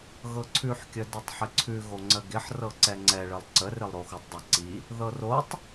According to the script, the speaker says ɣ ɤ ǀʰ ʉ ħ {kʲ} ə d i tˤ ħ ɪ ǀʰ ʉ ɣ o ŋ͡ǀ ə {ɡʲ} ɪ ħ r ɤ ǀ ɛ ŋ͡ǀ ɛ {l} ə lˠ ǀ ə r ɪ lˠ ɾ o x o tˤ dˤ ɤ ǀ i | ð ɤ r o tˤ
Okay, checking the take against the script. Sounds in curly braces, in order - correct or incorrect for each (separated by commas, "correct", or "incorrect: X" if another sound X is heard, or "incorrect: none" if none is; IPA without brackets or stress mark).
correct, incorrect: ɡ, incorrect: ɭ